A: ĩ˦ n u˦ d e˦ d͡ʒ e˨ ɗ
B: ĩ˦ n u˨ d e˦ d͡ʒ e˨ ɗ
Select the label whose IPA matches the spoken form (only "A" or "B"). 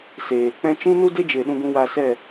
A